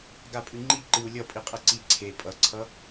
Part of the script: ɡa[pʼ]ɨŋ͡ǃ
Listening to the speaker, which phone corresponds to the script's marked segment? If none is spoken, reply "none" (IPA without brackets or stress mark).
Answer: pʼ